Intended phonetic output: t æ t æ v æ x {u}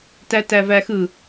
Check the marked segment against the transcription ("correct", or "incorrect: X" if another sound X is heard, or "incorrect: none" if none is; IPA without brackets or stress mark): incorrect: ɯ